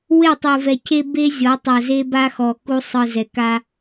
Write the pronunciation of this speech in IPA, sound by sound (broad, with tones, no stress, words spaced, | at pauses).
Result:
we˦˨tˤɯ˨vɛ˨cʰe˦ be˦zʲɔ˨˦ tˤa˨ze˦ba˦xɔ˨ ku˦ sˤɯ˨zɛ˨ka˦